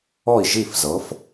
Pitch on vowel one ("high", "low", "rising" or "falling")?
falling